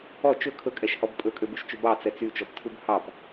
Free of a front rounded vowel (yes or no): no